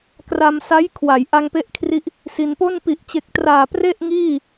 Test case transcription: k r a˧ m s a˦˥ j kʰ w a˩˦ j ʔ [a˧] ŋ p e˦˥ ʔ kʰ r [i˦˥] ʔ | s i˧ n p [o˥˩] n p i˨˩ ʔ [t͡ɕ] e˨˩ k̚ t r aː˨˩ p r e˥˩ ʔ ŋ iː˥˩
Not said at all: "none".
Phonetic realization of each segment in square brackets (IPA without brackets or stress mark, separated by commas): a˧, i˦˥, o˥˩, t͡ɕ